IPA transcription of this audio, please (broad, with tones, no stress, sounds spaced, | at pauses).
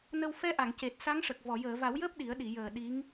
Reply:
n ə˧ w f ɛ˧˥ ʔ a˨˩˨ ŋ c e˨˩ t̚ s a˧˥ ŋ ʂ ə˨˩ k̚ v ɔ˨˩˨ j əː˨˩˨ v a˨˩˦ w j əː˦˥ p̚ ɗ i˨˩˦ ə̯ ɗ i˨˩˨ j əː˨˩ ɗ i˧˥ ŋ